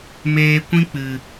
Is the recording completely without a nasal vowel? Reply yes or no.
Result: no